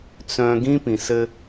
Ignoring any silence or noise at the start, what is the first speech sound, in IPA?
t͡s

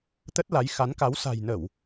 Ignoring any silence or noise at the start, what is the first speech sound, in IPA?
t̪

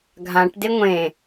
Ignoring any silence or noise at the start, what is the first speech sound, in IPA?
ɡʱ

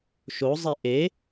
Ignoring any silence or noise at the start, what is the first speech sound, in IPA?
ʃ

